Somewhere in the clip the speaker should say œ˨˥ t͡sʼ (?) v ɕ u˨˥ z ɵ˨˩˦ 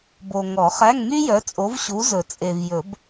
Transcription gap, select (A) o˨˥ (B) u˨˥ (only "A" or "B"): A